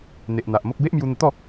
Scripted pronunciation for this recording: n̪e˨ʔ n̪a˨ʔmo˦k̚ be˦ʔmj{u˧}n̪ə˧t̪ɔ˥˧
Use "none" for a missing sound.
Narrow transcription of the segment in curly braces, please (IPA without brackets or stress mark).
u˧